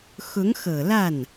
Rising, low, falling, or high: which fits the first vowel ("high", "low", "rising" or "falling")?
rising